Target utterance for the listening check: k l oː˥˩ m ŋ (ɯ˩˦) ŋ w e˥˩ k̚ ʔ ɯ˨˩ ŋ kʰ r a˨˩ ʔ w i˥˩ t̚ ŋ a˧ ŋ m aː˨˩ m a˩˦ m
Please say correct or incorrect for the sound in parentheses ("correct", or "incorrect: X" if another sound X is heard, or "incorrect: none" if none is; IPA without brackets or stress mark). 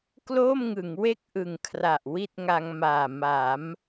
correct